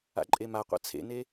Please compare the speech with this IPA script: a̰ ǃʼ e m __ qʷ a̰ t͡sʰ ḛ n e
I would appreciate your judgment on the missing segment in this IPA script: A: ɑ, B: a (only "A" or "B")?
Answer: B